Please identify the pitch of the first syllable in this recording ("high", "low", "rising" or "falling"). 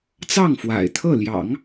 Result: falling